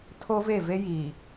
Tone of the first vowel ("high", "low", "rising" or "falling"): high